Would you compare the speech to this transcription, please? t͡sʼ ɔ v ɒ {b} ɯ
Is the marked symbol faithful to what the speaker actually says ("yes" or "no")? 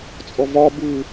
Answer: yes